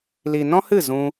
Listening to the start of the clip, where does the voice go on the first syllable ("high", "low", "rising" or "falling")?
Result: low